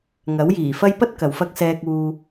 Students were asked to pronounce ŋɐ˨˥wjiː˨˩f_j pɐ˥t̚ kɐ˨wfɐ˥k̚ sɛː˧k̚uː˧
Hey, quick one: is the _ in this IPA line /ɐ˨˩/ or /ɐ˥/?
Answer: ɐ˥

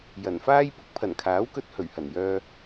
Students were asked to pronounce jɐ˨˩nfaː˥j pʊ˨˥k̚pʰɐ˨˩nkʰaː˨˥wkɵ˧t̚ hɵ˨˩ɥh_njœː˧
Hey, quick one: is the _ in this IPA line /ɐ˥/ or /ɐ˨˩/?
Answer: ɐ˨˩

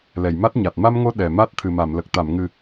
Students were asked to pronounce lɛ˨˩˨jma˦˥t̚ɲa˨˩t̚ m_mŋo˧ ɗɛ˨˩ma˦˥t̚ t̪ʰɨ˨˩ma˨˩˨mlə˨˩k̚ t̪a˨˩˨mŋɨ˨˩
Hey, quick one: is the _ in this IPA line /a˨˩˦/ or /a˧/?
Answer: a˧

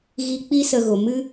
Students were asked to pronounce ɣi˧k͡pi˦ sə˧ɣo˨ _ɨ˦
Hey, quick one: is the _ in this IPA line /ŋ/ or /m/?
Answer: m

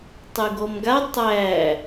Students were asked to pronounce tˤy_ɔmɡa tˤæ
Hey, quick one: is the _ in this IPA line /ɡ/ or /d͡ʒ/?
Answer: ɡ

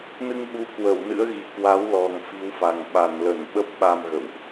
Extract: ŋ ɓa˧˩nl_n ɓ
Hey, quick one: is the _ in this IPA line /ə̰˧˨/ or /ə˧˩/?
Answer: ə˧˩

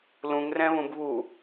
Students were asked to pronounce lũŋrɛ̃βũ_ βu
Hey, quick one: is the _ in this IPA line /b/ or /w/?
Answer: b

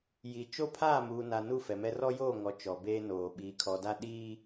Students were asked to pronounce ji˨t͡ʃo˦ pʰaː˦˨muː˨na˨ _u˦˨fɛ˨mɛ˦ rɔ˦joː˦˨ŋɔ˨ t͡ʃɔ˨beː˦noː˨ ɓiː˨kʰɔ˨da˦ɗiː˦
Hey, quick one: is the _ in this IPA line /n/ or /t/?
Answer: n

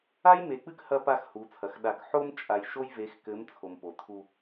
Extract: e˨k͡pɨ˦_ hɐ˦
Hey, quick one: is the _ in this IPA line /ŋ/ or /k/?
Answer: k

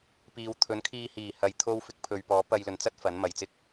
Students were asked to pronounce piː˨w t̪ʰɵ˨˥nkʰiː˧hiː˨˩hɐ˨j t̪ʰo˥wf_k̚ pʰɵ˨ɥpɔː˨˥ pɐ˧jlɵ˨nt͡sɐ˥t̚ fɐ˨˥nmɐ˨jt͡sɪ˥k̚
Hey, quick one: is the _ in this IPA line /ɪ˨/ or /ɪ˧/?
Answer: ɪ˧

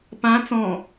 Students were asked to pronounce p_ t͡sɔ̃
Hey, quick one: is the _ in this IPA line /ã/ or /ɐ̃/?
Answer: ã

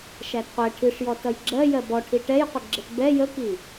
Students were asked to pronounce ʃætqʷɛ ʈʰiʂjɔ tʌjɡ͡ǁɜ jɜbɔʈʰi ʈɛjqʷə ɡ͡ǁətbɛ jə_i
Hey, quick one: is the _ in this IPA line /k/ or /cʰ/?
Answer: k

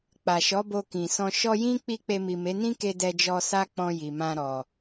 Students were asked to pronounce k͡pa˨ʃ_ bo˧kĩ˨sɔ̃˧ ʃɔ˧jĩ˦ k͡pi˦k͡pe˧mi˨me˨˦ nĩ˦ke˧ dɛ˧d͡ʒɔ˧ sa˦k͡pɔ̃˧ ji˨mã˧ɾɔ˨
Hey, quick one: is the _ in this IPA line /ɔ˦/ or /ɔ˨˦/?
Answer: ɔ˨˦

